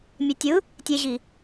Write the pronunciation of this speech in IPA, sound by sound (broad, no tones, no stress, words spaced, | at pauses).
mʲetʲɯ | tʲeʑi